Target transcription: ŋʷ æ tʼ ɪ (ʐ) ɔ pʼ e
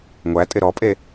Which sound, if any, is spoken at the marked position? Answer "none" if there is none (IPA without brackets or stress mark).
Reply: ɾ